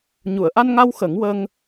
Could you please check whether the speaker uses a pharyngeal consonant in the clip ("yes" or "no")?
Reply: no